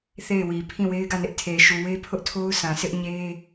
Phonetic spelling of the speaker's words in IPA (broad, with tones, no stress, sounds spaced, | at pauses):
θ e˦˨ ɪ̯ w i˨ pʰ ĩ˦˨ w e˦ ɪ̯ ɡ ä˦˨ n ɪ˦ ʔ tʰ e˨ ʃ u˨ w e˦ pʰ ʊ˦ ʔ tʰ o˦ ʊ̯ sʰ ã˨ sʰ ɪ˦ ʔ ɲ e˦